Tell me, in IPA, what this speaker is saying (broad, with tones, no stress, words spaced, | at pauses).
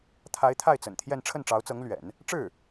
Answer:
t̪ʰa˧˥ɪ̯t̪ʰa˥˩ɪ̯t͡sə̰˨˩n t̪ʰjɛ˥˧n ʈ͡ʂʰə˥˩nʈ͡ʂɑ˧˥ʊ̯t͡sɤ˧˥ŋ lɥɛ̰˨˩˦n | ʈ͡ʂɻ̩˥˩